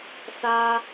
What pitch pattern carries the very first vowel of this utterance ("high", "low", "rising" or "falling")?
high